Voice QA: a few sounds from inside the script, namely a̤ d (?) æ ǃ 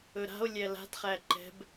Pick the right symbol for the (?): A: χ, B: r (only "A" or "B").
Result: A